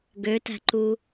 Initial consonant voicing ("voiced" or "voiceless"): voiced